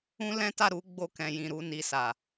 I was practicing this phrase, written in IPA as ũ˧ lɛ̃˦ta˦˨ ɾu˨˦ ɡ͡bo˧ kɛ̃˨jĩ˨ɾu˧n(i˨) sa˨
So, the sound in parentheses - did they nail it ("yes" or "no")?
yes